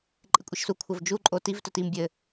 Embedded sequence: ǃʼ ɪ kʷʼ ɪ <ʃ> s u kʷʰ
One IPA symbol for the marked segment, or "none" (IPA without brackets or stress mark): ʃ